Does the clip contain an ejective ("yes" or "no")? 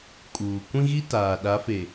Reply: yes